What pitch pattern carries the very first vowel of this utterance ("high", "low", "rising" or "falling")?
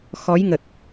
rising